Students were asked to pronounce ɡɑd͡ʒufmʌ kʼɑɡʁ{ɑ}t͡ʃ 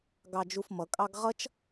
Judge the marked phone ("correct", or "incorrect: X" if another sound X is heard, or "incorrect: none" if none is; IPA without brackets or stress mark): incorrect: ʌ